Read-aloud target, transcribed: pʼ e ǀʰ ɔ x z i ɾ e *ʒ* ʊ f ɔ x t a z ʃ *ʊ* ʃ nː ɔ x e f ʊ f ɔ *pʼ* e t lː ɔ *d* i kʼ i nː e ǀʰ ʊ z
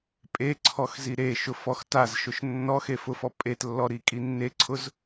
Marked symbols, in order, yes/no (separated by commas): no, yes, yes, no